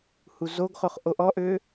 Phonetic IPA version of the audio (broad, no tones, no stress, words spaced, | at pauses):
huzoɡχoχ ʔoʔɔʔø